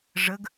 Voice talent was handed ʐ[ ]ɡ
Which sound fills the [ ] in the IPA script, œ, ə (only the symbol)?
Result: ə